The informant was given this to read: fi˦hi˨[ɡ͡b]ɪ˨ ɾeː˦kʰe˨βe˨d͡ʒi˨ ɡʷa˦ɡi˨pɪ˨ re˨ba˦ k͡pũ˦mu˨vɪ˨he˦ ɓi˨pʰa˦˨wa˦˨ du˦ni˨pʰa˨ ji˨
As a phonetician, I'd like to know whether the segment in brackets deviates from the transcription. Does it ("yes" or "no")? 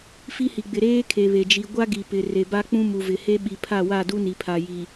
no